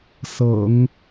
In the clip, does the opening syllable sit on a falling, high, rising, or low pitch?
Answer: low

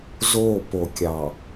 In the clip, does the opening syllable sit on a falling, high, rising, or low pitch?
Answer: falling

